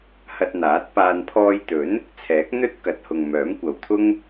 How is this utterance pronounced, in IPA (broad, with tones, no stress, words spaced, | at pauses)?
hɐ˧t̚n̪aː˨˥t̚ paː˨npʰɔː˧jt̪ɵ˨˥n | t͡sʰɛː˨˥k̚n̪ɵ˥t̚ kɐ˨t̚hʊ˨ŋ mœː˨˥mkʷɐ˨w t̪ʰʊ˥ŋ